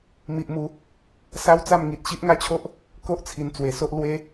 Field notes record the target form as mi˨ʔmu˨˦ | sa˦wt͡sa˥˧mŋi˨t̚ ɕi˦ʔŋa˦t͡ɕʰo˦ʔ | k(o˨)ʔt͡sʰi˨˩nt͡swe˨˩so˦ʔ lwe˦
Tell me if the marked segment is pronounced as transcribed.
no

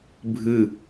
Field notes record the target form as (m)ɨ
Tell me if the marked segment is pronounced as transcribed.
no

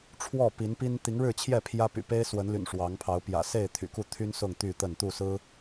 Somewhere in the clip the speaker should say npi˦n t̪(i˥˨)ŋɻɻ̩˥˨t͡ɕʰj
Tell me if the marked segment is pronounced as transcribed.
no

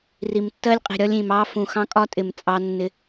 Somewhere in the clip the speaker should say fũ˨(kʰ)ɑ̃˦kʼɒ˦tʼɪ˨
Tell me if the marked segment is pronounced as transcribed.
no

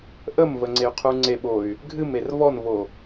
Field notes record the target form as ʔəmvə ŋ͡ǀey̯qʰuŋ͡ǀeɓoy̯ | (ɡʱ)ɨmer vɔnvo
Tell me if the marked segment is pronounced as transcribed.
yes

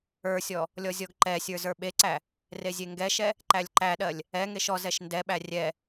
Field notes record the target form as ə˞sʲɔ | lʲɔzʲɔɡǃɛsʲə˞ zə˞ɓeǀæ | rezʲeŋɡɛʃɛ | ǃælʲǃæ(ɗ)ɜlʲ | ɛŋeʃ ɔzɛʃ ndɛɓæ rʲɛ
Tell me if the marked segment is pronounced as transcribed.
yes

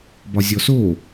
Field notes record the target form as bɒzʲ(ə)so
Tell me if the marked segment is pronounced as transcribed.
no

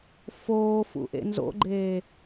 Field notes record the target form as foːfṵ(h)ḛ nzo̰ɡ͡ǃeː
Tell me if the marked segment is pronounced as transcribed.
no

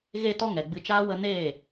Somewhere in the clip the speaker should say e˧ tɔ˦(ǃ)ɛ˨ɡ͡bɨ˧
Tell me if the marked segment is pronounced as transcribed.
no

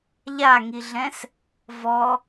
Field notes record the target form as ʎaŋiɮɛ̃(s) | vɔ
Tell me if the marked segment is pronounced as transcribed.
yes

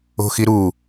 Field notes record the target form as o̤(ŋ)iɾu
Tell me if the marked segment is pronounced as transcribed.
no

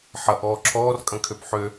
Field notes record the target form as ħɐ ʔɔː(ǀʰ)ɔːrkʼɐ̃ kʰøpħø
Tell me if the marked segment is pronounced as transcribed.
no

